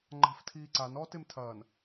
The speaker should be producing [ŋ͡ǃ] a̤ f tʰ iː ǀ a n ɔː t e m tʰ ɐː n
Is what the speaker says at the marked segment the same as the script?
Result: yes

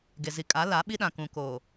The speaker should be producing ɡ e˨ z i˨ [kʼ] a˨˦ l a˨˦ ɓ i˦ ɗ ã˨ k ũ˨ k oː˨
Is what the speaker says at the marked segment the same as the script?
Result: yes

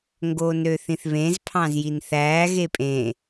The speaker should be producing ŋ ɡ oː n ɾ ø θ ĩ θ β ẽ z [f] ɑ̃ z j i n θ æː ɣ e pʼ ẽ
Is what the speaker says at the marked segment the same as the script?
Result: no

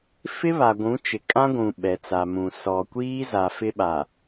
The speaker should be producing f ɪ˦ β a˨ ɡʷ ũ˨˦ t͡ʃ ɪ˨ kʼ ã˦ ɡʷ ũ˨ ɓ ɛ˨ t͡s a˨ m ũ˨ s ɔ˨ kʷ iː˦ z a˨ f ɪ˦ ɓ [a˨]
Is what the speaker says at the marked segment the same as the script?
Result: yes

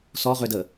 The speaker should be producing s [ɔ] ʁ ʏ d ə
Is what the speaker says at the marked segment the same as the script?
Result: yes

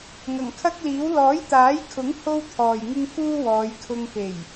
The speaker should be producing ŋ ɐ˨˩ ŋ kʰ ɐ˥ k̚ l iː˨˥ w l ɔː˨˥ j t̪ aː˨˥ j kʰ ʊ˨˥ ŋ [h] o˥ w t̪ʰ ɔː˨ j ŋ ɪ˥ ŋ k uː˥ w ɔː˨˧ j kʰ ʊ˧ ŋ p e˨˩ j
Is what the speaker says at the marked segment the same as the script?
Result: yes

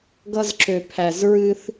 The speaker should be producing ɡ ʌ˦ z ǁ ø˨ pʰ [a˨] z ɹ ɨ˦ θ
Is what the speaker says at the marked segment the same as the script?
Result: no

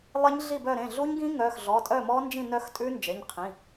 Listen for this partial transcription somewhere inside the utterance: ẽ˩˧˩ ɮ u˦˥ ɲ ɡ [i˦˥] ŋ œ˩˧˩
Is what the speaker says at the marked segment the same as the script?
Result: no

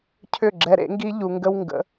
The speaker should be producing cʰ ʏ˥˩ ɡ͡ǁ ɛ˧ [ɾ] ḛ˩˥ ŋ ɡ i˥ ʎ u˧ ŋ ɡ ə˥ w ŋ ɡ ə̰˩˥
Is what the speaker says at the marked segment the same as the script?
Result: yes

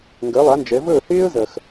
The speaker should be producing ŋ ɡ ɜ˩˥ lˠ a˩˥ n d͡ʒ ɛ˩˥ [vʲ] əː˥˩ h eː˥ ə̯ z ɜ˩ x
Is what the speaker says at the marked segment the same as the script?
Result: no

